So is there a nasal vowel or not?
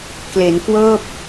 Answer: no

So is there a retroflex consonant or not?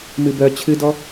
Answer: no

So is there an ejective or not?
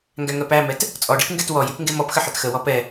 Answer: yes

